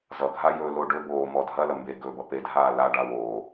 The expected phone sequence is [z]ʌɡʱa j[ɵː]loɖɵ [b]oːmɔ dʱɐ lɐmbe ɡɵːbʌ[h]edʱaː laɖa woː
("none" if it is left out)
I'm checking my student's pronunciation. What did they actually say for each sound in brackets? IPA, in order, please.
z, ɵː, b, p

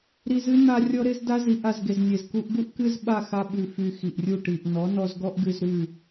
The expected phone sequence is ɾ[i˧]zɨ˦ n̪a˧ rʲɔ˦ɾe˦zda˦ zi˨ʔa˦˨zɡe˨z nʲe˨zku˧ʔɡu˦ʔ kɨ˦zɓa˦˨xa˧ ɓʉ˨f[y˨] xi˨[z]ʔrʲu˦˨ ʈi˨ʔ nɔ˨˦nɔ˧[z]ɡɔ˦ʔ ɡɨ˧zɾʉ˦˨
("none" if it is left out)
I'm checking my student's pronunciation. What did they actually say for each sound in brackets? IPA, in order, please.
i˧, y˨, none, z

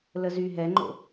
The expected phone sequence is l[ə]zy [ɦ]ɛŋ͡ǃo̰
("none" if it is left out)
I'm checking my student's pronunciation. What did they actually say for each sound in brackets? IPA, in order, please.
ə, ɦ

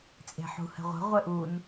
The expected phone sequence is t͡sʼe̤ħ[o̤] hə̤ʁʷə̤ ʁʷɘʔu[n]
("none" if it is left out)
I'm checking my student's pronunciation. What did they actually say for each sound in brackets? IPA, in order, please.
ṳ, n

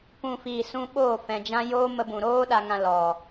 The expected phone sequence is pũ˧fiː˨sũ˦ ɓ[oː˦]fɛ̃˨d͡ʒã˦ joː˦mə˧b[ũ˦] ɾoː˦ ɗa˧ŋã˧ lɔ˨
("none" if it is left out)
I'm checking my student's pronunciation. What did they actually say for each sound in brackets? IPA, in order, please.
oː˦˨, ũ˨

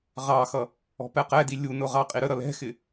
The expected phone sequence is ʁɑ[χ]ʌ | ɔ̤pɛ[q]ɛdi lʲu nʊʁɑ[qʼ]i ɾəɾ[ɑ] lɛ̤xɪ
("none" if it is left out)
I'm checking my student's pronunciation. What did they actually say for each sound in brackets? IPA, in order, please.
x, q, qʼ, ʌ

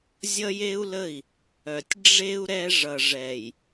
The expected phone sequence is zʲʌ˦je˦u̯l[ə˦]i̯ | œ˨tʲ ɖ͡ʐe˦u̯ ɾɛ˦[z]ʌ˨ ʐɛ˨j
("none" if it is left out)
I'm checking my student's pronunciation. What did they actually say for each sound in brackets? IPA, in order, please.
ə˦˨, ʐ

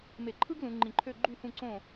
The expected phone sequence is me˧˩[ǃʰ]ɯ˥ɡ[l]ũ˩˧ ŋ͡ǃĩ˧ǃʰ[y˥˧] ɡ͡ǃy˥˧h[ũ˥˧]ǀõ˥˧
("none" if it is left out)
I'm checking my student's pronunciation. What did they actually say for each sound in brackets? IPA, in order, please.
ǃʰ, l, ø˥˧, ũ˥˧

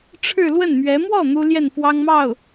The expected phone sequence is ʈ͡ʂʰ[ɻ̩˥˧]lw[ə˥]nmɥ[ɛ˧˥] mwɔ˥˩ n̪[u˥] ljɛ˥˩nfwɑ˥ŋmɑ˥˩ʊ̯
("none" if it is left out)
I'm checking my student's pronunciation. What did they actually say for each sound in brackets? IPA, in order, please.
ɻ̩˥˧, ə˥˩, ɛ˧˥, u˥

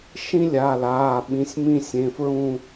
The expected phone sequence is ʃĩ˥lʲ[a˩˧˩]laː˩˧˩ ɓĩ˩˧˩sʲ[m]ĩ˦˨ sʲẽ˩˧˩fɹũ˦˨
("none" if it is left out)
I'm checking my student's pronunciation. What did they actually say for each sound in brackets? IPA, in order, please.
a˩˧˩, m

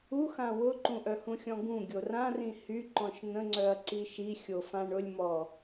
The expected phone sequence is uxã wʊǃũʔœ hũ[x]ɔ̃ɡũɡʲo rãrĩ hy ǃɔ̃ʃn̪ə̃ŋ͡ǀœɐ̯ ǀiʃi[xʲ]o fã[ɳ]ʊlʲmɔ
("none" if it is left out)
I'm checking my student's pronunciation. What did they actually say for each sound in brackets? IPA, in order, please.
xʲ, xʲ, ɳ

